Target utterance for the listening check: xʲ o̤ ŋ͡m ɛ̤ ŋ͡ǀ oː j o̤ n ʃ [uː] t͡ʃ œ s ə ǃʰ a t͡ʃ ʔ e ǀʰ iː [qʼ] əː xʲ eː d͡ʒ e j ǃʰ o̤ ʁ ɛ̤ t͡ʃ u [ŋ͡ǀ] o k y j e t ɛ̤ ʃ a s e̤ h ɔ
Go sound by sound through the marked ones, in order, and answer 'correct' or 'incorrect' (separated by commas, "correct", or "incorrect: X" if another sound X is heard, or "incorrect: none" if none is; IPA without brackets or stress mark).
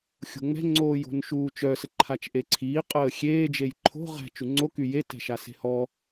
correct, correct, correct